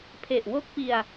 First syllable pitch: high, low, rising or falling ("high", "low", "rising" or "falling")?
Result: low